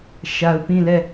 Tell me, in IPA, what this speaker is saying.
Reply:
ʃ a˨ ʊ̯ p ĩ˦˨ l ɛ˦˨

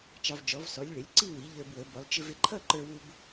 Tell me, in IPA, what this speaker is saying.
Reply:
t͡ʃ ɑ˧ v d͡ʒ ɔ˩˥ v s ɔ˩˥ lʲ ɭ ɪ˩˥ lʲ ǀ i˥˧ w i˩˥ ʎ ə˞˧ b w ə˩˥ b ʊ˩˥ lˠ t͡ʃ ɪ˧ v ɪ˧ ǃʰ ʌ˥˧ ǃ ə˞˧ w u˧ b

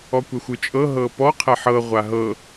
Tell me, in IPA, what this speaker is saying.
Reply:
ɔ kʷ ɛ xʷ ɯ t͡ʃʼ ɤ ɦ ɤ p ɔ qʰ ɛ ħ ɤ ʁʷ a ɦ ɤ

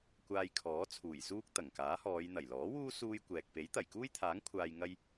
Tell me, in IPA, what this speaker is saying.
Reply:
kʷ aː˧ j kʰ ɔː˨˥ t͡sʰ uː˨˩ j s uː˥ k̚ t̪ ɐ˨˩ ŋ k aː˨˥ h ɔː˨˧ j n̪ ɐ˨˩ j l ɔː˨˥ w uː˥ s uː˥ j kʷ ɛː˨ k̚ p e˨˥ j t̪ ɐ˨˩ j k uː˥ j t̪ʰ aː˨˥ ŋ kʷʰ aː˧ j ŋ ɐ˥ j

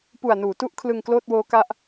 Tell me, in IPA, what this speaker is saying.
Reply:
p u˨˩ a̯ n uː˩˦ t u˥˩ ʔ kʰ l ɯ˧ ŋ k l oː˥˩ t̚ w oː˦˥ k a˦˥ ʔ

